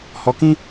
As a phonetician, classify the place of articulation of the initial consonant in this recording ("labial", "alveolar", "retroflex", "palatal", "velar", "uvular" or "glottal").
glottal